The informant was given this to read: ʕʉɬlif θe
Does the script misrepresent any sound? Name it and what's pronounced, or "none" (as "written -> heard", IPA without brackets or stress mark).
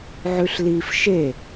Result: θ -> ʃ